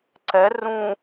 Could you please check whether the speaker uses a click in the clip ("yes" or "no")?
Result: yes